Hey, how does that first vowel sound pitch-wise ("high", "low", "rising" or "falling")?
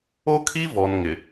high